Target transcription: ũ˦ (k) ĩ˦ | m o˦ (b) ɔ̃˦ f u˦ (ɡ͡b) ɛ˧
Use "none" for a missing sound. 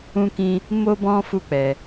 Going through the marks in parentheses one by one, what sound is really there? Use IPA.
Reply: k, b, k͡p

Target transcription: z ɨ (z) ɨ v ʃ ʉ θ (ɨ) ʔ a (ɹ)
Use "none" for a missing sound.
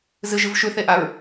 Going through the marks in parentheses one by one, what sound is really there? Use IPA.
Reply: ʒ, e, ɹ

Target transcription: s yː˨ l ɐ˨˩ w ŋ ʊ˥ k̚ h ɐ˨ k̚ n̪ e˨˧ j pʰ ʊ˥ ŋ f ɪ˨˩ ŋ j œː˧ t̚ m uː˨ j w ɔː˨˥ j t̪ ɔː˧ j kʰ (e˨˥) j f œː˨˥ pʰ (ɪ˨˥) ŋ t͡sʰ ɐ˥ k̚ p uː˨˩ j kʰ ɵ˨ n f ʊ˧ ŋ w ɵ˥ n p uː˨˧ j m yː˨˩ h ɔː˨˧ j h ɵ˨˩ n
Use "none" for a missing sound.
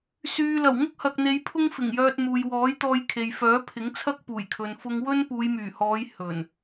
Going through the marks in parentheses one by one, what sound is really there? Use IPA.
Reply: e˨, ɪ˨˥

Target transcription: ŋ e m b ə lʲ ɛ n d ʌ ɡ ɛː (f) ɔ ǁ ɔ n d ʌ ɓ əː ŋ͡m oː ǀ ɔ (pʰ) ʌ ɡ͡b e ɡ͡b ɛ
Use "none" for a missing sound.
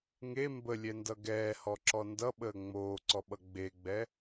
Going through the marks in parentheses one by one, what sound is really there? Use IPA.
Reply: h, ɓ

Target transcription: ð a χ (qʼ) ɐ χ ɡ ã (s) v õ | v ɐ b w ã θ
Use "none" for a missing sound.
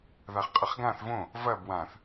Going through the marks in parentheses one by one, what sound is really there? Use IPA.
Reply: qʼ, θ

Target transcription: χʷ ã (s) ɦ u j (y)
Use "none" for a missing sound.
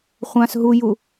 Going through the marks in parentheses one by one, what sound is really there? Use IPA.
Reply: s, u

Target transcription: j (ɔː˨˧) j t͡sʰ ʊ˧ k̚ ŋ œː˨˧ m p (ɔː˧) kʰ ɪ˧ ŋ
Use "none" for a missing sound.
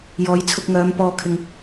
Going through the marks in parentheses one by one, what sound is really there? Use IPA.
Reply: ɔː˨˧, ɔː˧

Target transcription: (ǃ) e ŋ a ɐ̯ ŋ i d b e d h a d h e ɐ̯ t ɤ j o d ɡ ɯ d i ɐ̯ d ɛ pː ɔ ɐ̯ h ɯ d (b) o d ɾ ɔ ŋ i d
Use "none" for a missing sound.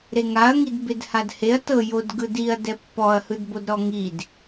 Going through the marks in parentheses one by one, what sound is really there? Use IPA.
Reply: ɾ, b

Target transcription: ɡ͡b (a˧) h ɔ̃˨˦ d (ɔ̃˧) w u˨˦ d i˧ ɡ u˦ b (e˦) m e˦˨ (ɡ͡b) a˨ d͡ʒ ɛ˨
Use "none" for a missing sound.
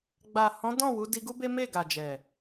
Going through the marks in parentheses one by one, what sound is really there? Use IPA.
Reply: a˨, ɔ̃˦˨, e˦, ɡ

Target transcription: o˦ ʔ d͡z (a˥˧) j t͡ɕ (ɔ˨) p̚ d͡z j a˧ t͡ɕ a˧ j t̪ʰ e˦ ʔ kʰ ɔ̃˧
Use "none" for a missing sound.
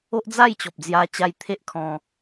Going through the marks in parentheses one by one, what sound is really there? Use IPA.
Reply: a˥˧, ɔ˨

